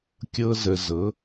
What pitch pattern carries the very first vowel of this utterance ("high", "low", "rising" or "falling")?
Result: high